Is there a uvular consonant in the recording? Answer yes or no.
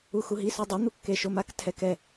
no